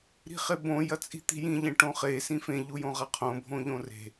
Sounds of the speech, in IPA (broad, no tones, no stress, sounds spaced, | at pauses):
ɾ i̤ χ e b õ j ɐ t͡sʼ i̤ t̪ i̤ j ĩ ʎ ẽ ʈ õ χ e s ĩ f ẽ ʎ u j õ ʁ a qʰ õ bʱ õ ʎ õ r e̤